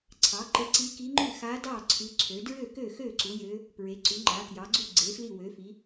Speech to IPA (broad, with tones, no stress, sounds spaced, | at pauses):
ǀʰ ɑ˩˥ ǃ e˧˥ ǀ i˧˥ k i˧˥ ŋ͡ǃ ʉ˥˩ x a˧˥ d ɑ˥˩ ǀʰ ʉ˧˥ ǀʰ ø˩˥ d ɹ ø˥˩ k ø˥˩ x ø˥˩ ǀ u˩˥ j ø˧˥ | p ɹ e˩˥ ǀ ʉ˩˥ ŋ͡ǃ a˩˥ k j ɑ˩˥ ɡ͡ǀ u˥˩ ɡ͡ǀ e˩˥ f l i˥˩ w ø˩˥ f i˩˥